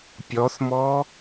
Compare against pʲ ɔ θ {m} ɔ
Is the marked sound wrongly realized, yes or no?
no